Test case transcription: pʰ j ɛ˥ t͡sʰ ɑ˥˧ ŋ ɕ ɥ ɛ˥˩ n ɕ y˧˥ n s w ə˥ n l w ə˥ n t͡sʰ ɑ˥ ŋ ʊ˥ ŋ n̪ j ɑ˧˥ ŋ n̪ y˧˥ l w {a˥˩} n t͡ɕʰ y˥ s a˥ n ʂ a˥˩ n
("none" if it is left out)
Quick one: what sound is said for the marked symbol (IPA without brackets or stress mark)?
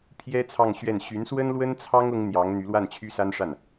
a˥˩